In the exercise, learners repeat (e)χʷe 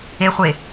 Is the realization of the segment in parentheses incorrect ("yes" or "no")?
no